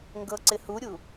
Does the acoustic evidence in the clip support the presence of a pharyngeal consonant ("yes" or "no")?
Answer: no